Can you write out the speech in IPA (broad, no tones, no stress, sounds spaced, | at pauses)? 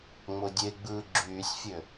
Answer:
ŋ͡m o dʲ e ɡ͡b ɯː ɡ͡ǁ yː sʲ fʲ ø